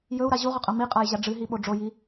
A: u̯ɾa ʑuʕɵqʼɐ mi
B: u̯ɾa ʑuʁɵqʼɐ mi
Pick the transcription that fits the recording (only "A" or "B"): B